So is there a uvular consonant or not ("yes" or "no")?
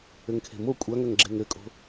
no